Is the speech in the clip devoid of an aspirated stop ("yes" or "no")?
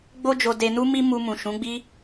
yes